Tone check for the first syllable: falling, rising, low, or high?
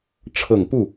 low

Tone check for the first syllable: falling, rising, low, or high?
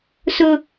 high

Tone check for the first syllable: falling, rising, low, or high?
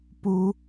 high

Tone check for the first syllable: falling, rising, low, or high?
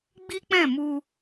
high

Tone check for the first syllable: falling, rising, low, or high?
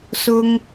high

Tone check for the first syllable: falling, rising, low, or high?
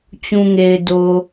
low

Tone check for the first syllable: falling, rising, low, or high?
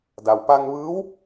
low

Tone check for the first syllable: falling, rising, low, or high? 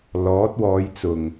rising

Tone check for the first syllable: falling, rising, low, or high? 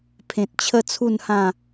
low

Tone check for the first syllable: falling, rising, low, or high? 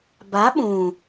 rising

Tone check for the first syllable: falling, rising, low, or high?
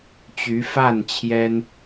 rising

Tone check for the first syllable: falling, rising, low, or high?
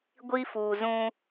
high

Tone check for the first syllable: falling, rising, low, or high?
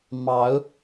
rising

